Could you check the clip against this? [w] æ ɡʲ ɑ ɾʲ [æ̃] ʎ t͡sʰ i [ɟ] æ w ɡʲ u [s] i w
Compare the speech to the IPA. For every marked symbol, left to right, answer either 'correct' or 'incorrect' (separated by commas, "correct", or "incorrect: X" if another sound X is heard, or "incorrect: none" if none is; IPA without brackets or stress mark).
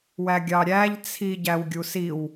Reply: correct, incorrect: æ, correct, correct